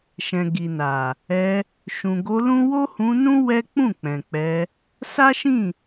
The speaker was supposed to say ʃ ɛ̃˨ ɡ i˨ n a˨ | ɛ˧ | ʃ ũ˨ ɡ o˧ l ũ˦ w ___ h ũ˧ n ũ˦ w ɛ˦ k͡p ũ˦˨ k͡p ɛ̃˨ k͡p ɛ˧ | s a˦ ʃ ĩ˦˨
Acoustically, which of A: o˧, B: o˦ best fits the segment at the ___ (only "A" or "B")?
B